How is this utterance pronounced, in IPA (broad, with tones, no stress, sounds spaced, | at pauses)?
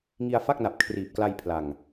ŋ i˧ a̯ f a˥˩ k̚ n a˨˩ p̚ kʰ r iː˨˩ p̚ k l a˧ j pʰ l a˨˩ ŋ